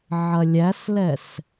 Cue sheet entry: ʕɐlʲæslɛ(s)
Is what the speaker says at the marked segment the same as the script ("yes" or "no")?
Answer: yes